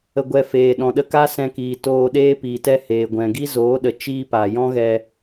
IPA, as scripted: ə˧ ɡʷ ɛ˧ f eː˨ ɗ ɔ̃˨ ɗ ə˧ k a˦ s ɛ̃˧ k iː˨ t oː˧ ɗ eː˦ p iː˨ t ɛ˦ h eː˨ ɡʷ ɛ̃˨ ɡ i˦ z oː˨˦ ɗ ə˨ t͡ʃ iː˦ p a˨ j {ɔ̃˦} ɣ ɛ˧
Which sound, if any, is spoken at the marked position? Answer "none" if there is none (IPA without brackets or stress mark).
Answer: ɔ̃˦